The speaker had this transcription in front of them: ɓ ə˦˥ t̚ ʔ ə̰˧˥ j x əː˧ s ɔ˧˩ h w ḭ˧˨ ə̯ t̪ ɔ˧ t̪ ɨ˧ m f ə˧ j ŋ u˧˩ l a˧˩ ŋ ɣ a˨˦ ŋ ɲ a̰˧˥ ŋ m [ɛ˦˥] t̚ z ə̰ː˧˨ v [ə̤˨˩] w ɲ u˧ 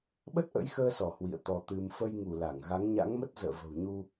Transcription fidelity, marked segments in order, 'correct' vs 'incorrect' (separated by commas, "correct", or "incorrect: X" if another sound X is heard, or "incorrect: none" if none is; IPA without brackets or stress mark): incorrect: ə˦˥, correct